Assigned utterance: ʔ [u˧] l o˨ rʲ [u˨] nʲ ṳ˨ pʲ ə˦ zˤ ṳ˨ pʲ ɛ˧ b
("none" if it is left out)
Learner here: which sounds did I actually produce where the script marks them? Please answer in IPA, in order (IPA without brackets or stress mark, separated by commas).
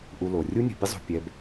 u˧, u˦